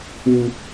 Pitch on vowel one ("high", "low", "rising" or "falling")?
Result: low